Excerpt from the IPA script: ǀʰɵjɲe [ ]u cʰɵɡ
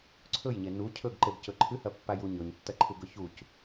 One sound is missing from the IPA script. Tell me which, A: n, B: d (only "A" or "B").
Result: A